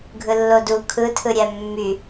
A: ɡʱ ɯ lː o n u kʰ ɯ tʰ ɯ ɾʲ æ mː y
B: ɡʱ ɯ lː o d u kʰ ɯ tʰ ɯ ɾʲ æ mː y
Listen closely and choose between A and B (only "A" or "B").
B